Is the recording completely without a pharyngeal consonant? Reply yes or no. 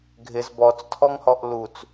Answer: yes